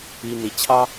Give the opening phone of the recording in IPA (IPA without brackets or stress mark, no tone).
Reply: i